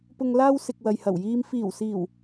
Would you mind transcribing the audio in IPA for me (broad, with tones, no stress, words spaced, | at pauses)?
pʊ˨ŋlaː˧w sɪ˨k̚wɐ˨jhɐ˨˩wjiː˧m fiː˨˩wsiː˨˩w